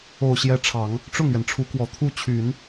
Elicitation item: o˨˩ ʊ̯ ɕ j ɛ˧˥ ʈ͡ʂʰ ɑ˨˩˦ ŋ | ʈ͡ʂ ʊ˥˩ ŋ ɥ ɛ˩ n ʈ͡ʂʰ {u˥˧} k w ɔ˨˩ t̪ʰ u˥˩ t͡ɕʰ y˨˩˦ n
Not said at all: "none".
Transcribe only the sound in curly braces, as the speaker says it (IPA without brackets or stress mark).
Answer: u˧˥